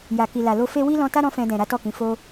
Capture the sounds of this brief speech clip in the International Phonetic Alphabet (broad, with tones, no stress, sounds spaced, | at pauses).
j a˨ k i˨ l a˨ l o˧ f e˧ w i˦ l ɔ̃˧ t a˦ ɾ ɔ̃˦ f ɛ̃˧ d ɛ̃˨ ɾ a˨˦ t ɔ˦˨ k ĩ˨˦ f o˦